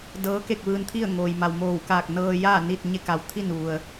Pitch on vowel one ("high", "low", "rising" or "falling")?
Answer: rising